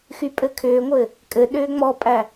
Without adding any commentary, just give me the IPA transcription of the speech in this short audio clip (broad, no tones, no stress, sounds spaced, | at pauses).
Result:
x y pʼ ɘ kʰ ʏː ŋʷ ɘː | kʼ ɘ ɗ ʏː ŋ͡m ɔ pʼ æ